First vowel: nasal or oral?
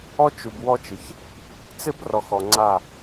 oral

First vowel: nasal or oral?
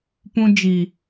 nasal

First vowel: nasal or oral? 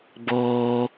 oral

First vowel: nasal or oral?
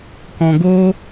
nasal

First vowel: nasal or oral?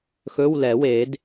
oral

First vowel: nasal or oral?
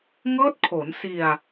oral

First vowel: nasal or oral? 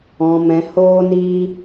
nasal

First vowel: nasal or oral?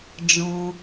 nasal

